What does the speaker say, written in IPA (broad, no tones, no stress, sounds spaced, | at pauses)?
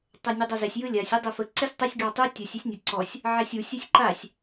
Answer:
tˤ ɛ nʲ ɯ dˤ ɐ z ɛ sʲ j ɯ lʲ a sʲ u dˤ ɪ f ə ǀ ɪ sʲ tˤ ə sʲ ɡ ɑ tˤ ɯ tʲ ə sʲ i sʲ nʲ ə ǀ ɔ sʲ | ʕ ɛ sʲ u sʲ ɛ sʲ ǃ a sʲ